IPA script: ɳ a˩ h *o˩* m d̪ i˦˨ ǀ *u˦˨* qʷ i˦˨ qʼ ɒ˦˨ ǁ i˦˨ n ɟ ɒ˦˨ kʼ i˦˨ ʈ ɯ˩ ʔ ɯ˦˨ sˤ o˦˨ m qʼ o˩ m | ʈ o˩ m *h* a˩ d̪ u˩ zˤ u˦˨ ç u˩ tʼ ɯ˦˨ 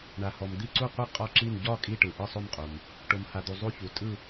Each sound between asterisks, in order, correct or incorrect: incorrect, correct, correct

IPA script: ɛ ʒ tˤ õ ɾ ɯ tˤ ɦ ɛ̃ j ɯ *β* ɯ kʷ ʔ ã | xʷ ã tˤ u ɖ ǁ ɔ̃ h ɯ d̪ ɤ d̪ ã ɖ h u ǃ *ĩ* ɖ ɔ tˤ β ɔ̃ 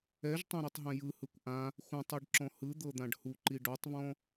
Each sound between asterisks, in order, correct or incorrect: incorrect, incorrect

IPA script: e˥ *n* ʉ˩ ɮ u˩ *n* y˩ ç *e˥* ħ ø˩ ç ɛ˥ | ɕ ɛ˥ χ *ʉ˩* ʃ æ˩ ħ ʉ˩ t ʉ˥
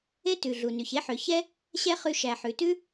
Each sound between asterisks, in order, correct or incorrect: incorrect, correct, correct, incorrect

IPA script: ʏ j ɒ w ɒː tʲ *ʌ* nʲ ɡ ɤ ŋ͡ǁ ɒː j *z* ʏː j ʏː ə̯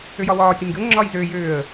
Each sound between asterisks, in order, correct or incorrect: incorrect, correct

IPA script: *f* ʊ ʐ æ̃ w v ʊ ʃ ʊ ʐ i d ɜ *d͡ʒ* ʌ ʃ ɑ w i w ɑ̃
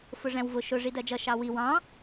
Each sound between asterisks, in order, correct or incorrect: correct, correct

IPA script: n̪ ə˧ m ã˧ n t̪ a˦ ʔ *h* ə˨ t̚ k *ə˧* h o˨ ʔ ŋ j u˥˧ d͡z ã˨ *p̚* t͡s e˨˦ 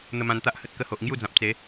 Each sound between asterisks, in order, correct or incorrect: correct, correct, correct

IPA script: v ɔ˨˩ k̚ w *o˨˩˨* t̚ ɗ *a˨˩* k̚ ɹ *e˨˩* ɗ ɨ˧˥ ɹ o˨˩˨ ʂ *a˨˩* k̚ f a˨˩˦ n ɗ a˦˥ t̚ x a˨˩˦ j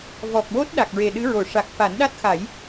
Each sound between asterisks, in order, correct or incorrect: incorrect, correct, correct, correct

